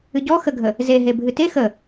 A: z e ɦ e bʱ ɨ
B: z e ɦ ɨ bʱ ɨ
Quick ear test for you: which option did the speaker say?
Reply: A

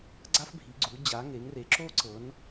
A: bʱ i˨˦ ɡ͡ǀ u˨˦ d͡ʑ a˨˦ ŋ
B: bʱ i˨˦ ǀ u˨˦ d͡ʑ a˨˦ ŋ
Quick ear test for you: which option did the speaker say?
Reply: A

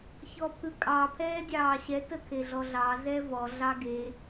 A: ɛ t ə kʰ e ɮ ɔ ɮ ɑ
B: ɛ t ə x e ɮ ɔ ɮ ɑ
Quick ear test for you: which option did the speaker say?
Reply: A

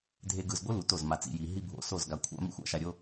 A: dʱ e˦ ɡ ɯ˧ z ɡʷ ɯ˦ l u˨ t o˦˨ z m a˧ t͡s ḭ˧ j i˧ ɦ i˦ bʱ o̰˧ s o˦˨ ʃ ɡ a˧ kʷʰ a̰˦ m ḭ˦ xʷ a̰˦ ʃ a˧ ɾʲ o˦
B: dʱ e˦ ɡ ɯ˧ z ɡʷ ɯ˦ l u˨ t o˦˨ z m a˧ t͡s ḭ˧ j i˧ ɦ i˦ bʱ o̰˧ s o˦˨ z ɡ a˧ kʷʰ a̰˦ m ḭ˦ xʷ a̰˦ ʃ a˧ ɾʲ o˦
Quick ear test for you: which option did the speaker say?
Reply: B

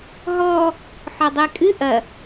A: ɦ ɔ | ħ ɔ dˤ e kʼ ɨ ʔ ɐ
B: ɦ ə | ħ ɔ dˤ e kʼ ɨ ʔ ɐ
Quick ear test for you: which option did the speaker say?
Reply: A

